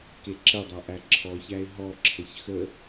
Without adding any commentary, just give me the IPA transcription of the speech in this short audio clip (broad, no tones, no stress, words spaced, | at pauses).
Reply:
keǁədˤa ʔæǁʰɔçæɪ̯ ɦɔǁʰəç xə